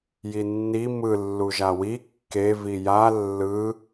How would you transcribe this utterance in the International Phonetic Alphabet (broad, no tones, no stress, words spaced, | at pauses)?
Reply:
jinːi mɯ lːuʒawi kːe vija lːɯ